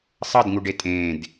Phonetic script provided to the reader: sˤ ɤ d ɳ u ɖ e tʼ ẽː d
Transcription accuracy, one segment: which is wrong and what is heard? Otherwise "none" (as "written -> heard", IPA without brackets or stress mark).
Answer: ɳ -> ŋ